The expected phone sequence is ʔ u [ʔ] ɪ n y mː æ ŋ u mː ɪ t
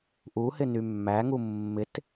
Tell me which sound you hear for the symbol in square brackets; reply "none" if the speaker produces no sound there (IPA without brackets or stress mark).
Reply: h